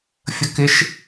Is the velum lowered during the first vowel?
no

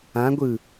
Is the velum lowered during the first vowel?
yes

